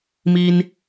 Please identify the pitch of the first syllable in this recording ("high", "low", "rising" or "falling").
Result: high